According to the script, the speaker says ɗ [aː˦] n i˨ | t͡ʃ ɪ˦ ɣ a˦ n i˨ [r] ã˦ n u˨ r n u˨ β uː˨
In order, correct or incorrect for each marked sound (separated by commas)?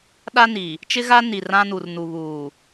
incorrect, correct